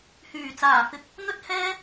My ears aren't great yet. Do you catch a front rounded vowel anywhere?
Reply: yes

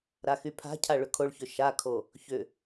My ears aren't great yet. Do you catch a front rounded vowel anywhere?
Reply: yes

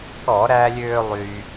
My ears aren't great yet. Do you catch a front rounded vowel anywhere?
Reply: yes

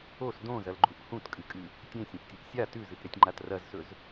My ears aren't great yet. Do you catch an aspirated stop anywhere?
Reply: no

